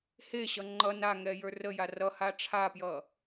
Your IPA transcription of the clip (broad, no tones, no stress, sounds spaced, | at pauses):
h e ɕ ʌ ŋ͡ǃ ʌ n a ŋ ɛ j ə˞ r ə j a r ʌ h a ʈ͡ʂʰ a p j ʌ